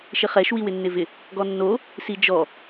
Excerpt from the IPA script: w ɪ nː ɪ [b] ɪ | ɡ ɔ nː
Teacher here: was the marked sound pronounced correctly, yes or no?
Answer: no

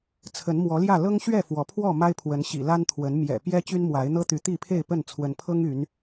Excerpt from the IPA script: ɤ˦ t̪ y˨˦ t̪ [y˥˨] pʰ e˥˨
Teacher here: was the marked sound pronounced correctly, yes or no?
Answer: no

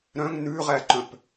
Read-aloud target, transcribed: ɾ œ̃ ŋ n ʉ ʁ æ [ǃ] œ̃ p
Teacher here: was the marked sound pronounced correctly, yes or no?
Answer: yes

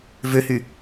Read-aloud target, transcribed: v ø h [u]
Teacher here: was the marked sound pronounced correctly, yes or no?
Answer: no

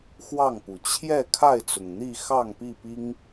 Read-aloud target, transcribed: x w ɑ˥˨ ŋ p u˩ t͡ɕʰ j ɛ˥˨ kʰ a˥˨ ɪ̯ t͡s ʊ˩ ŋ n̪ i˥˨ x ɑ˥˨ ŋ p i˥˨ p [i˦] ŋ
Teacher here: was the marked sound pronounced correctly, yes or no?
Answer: yes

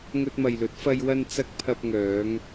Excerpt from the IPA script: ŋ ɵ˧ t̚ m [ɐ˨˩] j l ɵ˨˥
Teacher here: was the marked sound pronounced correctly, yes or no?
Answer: no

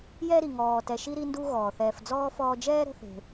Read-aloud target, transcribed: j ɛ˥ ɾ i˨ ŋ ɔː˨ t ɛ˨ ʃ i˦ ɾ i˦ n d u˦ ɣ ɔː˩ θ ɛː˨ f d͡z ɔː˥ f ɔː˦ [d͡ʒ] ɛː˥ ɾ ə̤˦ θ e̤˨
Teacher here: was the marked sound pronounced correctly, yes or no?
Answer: yes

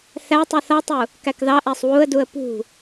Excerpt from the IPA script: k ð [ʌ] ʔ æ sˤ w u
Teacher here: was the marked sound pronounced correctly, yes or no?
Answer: no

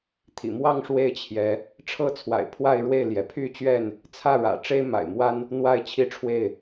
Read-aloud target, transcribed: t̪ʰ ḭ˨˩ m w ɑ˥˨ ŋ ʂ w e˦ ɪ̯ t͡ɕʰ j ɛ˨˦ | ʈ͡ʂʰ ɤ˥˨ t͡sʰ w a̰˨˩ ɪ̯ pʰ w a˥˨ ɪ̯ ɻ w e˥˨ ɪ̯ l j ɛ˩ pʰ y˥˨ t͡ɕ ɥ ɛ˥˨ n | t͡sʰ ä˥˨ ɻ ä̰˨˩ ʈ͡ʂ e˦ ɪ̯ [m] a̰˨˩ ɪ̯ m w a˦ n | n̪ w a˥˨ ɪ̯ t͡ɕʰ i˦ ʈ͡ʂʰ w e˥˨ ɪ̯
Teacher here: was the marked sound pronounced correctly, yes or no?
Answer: yes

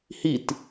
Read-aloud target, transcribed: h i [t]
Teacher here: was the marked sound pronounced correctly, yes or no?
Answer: yes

